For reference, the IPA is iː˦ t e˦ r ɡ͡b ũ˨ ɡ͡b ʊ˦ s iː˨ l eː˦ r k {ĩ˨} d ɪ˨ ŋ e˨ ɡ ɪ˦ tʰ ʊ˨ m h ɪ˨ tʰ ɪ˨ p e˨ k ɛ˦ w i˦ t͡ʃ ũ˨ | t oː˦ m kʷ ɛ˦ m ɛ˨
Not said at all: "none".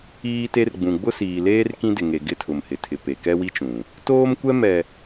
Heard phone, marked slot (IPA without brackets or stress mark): ĩ˦